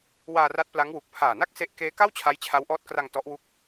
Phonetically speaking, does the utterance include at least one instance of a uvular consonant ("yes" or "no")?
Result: no